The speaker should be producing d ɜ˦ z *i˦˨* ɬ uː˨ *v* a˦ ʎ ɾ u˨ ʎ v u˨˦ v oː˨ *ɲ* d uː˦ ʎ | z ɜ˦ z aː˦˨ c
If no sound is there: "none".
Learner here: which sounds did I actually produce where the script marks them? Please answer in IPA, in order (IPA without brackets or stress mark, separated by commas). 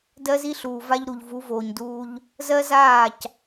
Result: i˦, v, ɲ